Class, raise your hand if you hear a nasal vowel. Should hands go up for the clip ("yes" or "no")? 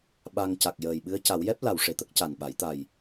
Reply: no